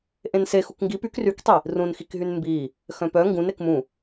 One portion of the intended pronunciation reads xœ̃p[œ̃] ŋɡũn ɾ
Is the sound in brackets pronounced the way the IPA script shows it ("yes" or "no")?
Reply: no